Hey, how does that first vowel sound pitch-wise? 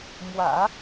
low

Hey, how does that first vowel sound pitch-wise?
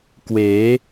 rising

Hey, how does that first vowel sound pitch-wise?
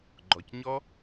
low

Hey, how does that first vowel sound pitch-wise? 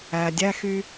low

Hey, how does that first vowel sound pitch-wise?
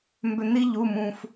low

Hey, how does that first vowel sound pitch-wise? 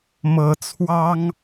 rising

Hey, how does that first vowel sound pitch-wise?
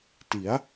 rising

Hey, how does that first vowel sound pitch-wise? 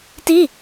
falling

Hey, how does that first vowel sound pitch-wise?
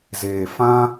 low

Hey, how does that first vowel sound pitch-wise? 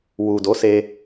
low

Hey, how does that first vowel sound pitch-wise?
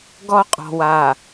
high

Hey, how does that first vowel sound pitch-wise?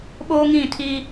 high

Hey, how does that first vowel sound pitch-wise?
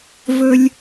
low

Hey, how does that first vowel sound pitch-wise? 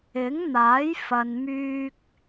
rising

